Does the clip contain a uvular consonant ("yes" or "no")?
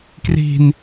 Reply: no